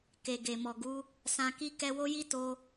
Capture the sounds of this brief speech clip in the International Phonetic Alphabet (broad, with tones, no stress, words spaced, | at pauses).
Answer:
ke˨ɡe˨mɔ˨ɡu˨˦ | sã˧ki˦ kɛ˧wo˦ji˦ to˧